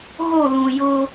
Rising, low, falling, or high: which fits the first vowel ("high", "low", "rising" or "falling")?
falling